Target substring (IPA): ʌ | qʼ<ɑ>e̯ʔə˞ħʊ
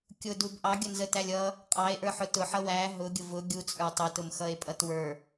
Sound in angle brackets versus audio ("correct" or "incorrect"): correct